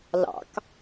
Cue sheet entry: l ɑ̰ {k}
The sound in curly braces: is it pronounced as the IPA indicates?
yes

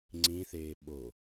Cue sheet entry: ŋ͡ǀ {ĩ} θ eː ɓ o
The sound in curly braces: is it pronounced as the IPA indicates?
yes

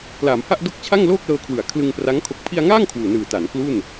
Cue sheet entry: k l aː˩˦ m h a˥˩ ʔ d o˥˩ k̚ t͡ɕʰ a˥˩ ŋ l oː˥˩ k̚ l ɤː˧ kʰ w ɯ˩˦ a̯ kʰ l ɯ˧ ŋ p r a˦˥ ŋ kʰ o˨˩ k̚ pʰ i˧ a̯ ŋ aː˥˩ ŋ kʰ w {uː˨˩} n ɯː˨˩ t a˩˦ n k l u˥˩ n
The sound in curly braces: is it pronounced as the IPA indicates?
yes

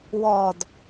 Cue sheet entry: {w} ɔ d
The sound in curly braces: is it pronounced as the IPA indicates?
yes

